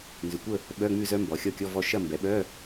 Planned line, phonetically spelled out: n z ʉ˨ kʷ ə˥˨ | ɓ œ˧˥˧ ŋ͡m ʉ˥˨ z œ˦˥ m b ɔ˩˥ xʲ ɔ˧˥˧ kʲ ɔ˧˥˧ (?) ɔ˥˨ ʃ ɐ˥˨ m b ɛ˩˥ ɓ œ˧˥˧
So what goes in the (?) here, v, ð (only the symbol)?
v